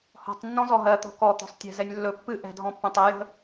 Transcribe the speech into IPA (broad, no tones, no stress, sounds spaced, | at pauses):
h ɔ̤ tˤ nː ɔ̃ z ɔ ɦ ɜ t̪ ɔ̤ k ɔ t̪ ɔ̤ sˤ tʲ ɛ̤ z ɛ nʲ lː ɵ pː ɨ ʔ ɛ̤ dʱ ɔ̃ pː ɛ̃ tˤ ɛ j ə̤